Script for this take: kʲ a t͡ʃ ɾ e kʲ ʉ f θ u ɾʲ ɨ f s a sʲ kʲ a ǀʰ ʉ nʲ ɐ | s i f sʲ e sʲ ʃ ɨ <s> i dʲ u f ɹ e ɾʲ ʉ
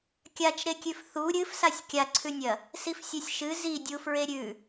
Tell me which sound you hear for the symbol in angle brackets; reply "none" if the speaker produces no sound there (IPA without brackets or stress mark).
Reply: z